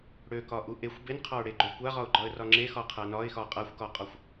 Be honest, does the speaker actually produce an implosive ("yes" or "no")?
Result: no